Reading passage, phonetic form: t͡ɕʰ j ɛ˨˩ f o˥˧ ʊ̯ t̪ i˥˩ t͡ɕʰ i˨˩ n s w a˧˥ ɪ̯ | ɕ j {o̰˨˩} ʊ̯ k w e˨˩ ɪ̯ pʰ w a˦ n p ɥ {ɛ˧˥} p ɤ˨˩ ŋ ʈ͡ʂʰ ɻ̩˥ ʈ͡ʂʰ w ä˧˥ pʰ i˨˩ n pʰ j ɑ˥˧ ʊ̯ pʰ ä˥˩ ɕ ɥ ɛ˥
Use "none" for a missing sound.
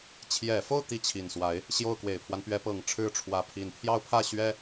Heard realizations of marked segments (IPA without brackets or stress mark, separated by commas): o˥˩, ɛ˧˥